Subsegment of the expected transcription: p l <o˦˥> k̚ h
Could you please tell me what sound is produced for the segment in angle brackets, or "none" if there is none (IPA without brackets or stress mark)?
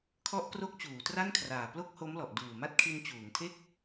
o˥˩